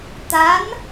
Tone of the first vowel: rising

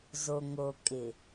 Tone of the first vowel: low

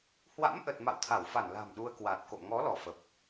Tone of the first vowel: rising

